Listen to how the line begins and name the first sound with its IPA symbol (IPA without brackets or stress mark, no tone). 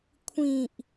kʷʰ